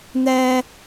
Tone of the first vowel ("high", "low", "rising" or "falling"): high